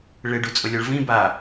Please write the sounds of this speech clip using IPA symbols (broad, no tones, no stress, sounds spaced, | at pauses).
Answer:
ɭ ɪ ɖ u t͡sʼ ʊ lʲ ɔ ɭ v ĩ b a